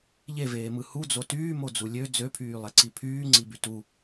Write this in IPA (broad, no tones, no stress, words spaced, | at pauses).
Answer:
ʎeveːmɯ hud͡zo tyːmod͡zu lʲø d͡zøpʰyːlˠeǀi pʰyːŋ͡ǀiby tu